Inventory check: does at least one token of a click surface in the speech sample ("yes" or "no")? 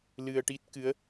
no